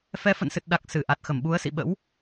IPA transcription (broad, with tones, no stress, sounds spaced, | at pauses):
f ɛ˨˦ f ə̰˧˨ n s ɨ˨˩ t̚ ɗ a˨˩ k̚ s ɨ˧˩ ʔ a˨˩ t̚ x ə˧˩ m ɓ u˨˦ ə̯ s ḭ˧˨ ɓ ə̰˧˥ w